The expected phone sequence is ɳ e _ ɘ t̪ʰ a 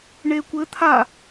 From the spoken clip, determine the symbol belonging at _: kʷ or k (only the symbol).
kʷ